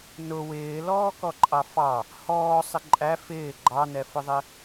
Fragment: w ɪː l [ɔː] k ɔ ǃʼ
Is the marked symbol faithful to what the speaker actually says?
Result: yes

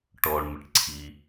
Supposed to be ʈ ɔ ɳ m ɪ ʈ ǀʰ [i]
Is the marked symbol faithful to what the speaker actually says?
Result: yes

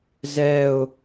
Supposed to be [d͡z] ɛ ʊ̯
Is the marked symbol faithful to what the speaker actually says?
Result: no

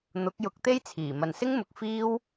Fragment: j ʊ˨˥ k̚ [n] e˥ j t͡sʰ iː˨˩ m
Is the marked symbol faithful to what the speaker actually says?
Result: no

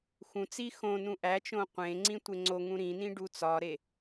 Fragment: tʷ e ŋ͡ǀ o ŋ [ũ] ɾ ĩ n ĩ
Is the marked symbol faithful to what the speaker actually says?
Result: yes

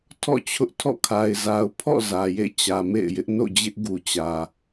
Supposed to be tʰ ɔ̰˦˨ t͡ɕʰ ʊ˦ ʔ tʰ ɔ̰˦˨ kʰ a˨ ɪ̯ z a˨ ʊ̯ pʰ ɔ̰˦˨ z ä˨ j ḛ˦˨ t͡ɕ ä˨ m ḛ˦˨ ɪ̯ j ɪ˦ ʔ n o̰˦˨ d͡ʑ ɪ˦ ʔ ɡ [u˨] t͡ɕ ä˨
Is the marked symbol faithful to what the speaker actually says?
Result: yes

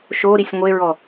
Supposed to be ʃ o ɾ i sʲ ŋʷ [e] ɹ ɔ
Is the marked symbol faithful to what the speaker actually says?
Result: yes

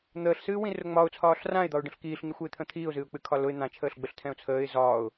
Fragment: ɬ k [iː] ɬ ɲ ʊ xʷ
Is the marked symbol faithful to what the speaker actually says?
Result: yes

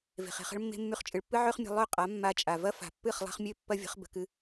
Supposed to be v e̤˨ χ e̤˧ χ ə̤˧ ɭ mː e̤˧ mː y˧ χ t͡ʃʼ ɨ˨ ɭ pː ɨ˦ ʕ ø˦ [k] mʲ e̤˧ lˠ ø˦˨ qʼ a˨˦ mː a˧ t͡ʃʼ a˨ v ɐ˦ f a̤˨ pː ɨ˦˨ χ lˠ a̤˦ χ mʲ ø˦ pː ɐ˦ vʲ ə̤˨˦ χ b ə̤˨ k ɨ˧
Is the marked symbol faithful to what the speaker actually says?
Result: no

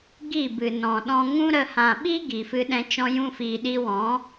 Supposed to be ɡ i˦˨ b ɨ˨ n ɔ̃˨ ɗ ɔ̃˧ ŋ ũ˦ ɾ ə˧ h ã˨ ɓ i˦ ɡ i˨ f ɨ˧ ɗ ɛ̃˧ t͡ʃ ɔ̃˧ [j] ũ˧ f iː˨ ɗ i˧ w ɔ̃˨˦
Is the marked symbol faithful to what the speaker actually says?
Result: yes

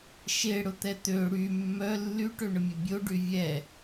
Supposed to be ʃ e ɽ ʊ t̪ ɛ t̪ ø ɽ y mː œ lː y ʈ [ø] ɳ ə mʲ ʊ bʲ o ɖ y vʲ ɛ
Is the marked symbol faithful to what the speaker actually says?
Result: yes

